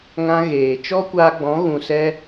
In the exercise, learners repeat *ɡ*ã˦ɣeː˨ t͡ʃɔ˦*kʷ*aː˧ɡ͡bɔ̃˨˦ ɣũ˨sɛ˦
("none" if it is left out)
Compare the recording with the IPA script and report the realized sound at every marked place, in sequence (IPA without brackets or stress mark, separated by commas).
ŋ, kʷ